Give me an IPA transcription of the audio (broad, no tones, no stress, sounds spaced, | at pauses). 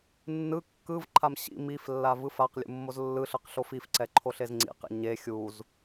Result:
nː ɯ kː ɯ v ǃʰ a m ɕ ḭ m i f lː a v ɯ f a q lʲ ṵ mː o z lː ɯ ɬ ɯ q ɬ o f i f ǀ ɛ ǃʰ o ɬ e z ŋ͡ǀ ḭ q ḭ ɲ e xʲ u z